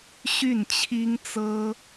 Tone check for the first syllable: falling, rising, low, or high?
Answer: falling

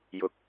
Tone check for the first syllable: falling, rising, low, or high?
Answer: low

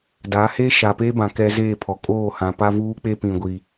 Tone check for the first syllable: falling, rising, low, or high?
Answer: rising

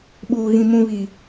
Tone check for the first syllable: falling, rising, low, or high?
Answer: low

